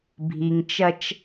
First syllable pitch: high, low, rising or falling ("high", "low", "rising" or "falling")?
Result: low